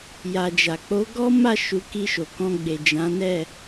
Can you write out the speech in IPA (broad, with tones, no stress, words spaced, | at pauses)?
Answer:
ja˨d͡ʒa˨k͡po˨˦ ɡɔ˦ ma˦˨ʃu˨˦ ki˧ʃo˨ kɔ̃˧ ɡ͡be˨d͡ʒã˨˦nɛ˦˨